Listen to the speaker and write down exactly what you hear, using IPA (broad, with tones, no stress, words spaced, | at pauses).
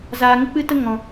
zaː˨ŋə˦k͡pɨ˦tə˦ ŋɔ̃˨